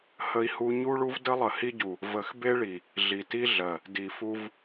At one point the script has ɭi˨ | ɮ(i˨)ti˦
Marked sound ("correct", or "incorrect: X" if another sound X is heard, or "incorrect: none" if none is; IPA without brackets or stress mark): correct